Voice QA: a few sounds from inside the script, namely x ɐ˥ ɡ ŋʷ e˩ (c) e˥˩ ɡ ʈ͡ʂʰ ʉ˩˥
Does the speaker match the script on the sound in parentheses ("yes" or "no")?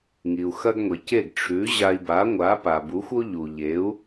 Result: yes